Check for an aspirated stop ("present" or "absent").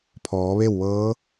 present